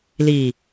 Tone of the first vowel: low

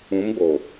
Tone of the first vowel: rising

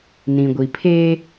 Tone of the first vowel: low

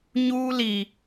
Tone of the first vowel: high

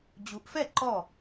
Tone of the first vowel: rising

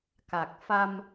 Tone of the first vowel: low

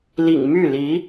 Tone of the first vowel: low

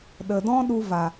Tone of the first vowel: low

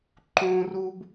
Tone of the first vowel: high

